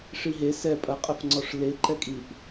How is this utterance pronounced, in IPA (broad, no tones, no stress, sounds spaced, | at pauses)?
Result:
ʂ i ɦ e s ɛ pʼ ɐ qʼ ə f ŋ͡ǀ ɔ ʂ l e ǃ ɛ kʼ i ʔ